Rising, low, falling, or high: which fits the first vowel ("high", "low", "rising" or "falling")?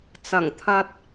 low